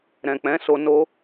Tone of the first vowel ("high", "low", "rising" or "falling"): low